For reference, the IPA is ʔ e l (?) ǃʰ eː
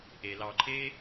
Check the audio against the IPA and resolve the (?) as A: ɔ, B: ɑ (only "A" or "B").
B